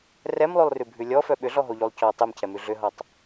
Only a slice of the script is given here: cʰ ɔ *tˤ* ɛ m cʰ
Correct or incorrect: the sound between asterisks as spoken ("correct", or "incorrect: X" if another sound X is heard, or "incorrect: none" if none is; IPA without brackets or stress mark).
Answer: correct